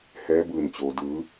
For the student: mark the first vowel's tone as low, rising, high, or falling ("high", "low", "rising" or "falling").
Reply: rising